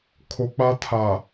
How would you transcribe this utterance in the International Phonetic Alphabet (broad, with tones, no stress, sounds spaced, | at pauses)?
kʰ o˦ k͡p a˦ tʰ a˨